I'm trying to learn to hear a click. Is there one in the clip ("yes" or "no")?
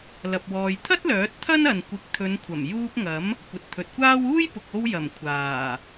no